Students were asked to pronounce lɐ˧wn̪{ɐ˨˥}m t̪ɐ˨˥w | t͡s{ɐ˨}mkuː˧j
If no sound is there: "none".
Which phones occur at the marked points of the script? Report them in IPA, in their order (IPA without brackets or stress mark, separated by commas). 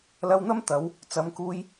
ɐ˥, ɐ˨˧